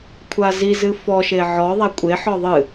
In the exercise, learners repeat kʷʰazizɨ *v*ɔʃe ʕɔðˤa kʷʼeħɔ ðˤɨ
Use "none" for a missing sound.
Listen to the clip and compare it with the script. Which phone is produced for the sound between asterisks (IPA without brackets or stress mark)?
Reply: f